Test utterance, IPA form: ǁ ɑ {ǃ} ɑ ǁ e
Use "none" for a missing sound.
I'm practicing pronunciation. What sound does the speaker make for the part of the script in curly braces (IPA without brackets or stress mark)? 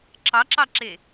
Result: ǁ